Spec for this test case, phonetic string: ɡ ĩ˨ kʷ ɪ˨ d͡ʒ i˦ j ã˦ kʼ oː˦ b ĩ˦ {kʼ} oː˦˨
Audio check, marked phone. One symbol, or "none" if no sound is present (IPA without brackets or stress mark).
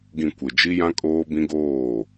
ɡ